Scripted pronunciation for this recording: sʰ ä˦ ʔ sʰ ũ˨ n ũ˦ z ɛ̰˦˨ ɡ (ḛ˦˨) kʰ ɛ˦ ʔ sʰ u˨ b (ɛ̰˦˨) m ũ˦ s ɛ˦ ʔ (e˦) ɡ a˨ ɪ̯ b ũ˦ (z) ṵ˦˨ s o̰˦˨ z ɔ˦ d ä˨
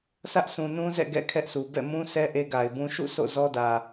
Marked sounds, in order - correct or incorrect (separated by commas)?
incorrect, correct, correct, incorrect